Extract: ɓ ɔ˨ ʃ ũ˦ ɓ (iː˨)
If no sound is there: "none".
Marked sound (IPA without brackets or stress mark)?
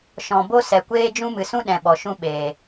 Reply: eː˨